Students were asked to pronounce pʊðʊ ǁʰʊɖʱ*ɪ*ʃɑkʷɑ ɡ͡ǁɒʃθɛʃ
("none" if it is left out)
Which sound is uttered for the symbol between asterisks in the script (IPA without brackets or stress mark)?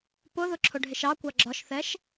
ɪ